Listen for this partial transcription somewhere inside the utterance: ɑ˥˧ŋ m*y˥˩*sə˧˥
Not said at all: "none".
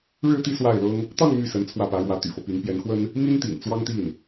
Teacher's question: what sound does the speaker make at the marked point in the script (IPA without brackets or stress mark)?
y˥˩